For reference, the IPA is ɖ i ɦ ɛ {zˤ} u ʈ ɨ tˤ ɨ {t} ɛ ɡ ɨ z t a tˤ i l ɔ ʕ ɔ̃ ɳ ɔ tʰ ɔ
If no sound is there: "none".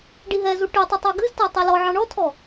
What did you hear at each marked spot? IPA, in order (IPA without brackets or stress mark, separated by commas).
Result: z, tˤ